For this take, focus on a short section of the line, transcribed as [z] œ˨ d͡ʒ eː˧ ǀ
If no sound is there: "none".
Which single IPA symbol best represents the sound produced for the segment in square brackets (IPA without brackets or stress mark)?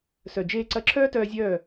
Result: s